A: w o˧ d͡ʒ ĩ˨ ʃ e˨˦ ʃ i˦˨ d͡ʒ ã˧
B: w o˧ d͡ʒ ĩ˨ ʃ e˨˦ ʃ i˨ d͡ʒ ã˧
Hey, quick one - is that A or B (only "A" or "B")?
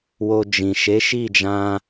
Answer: A